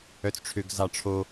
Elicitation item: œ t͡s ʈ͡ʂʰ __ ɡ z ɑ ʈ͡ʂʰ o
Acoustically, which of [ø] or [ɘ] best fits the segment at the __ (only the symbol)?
ø